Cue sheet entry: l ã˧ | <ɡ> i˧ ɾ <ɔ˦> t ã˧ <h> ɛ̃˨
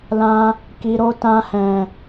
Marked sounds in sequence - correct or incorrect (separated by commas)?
incorrect, incorrect, correct